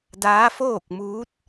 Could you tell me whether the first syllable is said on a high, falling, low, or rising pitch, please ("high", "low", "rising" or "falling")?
rising